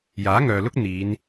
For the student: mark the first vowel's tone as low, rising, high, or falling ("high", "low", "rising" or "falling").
rising